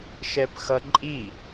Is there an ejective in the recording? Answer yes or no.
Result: yes